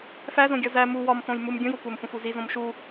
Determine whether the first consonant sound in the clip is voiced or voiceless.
voiceless